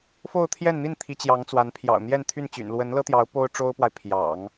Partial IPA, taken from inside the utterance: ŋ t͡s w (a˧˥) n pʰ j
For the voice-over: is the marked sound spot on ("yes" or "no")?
yes